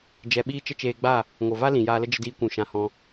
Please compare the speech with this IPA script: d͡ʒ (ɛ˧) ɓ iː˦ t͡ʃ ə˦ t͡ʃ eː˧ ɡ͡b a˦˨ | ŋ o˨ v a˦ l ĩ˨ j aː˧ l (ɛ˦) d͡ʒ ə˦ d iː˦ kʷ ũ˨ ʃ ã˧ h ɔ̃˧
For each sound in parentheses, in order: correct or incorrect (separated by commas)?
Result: correct, incorrect